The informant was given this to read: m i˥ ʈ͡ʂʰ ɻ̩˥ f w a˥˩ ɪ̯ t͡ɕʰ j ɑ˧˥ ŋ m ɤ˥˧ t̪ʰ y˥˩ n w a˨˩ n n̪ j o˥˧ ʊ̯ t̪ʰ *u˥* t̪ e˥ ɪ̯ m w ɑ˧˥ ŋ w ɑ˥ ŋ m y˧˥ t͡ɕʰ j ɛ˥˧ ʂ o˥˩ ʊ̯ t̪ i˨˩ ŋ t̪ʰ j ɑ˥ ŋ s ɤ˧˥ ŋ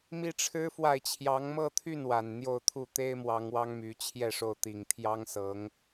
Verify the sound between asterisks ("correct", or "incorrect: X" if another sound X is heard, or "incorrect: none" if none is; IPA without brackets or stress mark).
incorrect: u˥˩